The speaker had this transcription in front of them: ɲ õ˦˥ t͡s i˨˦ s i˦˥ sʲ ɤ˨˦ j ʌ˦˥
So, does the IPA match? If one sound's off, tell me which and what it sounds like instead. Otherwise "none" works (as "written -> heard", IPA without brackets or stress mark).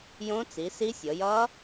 ɲ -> j